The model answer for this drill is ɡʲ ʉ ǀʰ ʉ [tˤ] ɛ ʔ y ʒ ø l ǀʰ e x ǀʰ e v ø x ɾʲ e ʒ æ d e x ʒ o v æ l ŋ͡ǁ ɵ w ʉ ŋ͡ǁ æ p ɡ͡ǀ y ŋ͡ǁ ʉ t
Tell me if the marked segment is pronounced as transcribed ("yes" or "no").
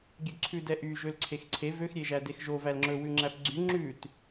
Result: no